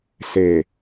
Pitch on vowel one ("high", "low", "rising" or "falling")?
low